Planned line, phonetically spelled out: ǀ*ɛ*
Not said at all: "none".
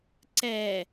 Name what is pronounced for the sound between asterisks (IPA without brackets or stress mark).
ɛ